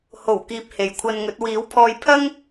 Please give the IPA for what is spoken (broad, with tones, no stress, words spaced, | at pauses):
ho˨˩wkiː˨p̚ he˨jkʷʰɐ˧nŋɵ˨˥t̚ wiː˨˥wpʰɔː˧jpʰɐ˥ŋ